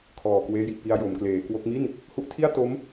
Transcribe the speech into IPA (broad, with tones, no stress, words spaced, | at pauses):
kʰɔː˨˩kweː˦˥ji˨˩ʔpi˧a̯ jo˩˦mkleː˩˦kwo˦˥k̚ mi˥˩n | hu˦˥ʔtʰi˥˩a̯ to˦˥m